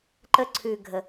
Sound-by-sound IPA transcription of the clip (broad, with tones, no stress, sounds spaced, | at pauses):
ǃ ə˧ ǀʰ ʉ˨ ɡʱ ə˨